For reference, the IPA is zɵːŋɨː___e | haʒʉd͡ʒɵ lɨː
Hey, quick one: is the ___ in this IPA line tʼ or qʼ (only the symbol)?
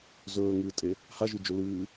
tʼ